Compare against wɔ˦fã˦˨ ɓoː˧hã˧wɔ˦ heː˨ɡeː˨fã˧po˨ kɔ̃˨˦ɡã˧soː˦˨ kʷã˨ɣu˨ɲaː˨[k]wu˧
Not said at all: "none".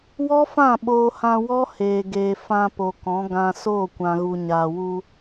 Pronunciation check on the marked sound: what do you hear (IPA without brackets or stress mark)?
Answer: none